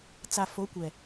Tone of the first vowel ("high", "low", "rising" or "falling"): low